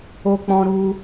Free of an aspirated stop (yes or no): yes